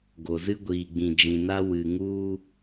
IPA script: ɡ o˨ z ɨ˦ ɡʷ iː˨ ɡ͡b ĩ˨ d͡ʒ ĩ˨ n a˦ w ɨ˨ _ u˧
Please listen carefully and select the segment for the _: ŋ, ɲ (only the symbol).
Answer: ŋ